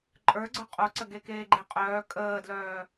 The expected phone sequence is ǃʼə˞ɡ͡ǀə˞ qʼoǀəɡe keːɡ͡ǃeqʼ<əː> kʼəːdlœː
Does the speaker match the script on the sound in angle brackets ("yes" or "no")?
no